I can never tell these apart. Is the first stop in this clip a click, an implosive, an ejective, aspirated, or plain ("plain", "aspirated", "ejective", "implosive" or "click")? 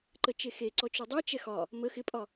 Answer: click